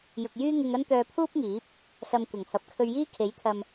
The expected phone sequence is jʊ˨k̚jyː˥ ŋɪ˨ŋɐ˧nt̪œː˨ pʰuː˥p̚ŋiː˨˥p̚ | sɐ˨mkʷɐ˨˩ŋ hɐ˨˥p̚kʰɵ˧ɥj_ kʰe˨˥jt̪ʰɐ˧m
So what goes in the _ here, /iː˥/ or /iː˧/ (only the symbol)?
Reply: iː˥